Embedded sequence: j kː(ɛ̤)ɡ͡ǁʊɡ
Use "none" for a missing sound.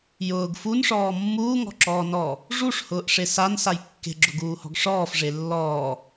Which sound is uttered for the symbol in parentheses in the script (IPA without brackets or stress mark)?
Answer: e̤